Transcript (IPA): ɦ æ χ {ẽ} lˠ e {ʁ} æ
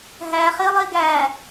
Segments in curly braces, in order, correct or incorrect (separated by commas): incorrect, incorrect